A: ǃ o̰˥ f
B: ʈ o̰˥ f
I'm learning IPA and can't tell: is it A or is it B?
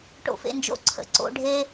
B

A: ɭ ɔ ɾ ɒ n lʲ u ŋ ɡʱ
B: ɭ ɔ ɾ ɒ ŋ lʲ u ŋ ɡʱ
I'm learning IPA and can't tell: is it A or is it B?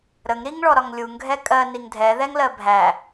B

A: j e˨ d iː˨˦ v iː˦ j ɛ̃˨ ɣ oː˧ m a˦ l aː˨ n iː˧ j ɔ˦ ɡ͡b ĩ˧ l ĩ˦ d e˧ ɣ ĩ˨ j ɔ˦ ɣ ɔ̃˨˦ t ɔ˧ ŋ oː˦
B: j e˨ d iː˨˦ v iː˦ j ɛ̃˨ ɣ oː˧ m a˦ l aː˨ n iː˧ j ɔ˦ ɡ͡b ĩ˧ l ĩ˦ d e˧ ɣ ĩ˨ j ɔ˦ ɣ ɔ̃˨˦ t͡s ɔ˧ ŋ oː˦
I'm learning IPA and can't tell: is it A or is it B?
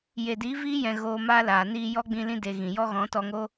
A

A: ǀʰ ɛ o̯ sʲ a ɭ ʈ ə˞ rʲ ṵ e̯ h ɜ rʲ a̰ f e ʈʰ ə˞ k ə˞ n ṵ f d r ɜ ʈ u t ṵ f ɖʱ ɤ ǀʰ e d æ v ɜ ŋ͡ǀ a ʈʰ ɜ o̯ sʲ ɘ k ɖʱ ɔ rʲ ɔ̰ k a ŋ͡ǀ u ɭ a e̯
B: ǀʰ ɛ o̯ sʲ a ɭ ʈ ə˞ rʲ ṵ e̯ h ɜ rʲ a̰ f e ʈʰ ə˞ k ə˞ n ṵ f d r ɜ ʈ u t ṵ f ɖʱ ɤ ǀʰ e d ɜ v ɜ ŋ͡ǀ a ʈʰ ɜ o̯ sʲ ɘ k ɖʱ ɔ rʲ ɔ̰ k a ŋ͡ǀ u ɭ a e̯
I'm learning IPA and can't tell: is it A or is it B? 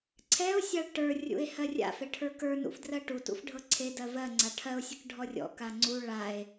B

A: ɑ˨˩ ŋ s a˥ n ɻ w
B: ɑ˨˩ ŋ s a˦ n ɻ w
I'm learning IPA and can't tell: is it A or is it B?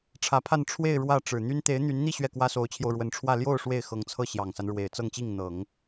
B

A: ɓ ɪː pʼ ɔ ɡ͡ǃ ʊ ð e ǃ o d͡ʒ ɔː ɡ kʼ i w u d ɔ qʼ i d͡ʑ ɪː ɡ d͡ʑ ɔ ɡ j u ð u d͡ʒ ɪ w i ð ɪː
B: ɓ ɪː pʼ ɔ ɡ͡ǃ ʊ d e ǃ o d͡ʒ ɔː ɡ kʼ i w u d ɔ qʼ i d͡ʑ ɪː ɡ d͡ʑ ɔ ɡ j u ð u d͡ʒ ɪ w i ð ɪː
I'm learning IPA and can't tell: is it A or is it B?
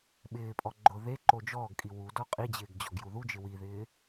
A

